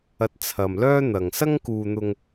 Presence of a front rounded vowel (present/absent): present